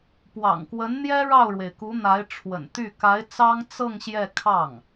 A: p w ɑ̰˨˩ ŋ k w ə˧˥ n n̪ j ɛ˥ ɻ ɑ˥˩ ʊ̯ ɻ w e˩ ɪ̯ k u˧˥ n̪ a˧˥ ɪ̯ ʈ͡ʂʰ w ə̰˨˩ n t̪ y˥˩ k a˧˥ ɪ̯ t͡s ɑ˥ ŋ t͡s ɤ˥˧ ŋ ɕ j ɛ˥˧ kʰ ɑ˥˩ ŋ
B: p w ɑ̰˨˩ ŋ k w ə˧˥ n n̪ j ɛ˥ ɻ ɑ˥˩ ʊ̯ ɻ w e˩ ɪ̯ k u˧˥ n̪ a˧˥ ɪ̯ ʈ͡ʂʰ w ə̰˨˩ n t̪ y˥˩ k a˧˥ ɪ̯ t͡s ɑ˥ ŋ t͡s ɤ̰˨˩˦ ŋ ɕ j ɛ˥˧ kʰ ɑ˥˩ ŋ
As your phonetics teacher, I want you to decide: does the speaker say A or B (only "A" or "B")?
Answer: A